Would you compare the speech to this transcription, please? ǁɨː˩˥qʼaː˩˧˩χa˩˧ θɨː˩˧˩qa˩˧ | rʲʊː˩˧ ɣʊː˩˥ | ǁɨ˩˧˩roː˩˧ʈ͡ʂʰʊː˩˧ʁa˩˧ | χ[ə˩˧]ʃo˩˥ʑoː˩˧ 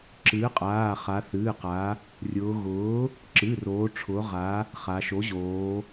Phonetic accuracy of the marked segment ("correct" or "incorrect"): incorrect